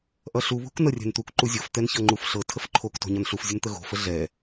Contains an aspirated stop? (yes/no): yes